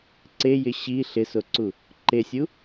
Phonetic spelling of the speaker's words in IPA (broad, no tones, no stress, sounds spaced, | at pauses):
ǀ e j ɪ ɕ i ɬ ɪ s o ǀ u | ǃ e sʲ u